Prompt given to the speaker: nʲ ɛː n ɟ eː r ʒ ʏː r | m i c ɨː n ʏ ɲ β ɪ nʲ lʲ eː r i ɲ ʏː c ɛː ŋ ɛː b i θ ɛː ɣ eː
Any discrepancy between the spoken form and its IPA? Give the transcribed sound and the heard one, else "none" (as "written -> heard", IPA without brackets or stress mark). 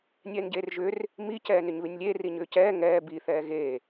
ɨː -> ɛː